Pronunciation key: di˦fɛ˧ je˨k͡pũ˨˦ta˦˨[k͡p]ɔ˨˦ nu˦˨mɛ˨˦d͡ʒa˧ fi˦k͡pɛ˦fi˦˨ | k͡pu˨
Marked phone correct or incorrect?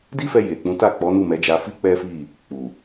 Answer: correct